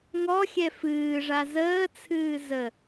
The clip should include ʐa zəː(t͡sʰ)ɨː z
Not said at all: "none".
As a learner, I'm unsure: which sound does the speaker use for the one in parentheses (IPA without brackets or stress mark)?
t͡sʰ